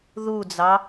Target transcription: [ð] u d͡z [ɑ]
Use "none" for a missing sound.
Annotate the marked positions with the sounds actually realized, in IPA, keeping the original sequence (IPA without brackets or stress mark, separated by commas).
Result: ð, ɑ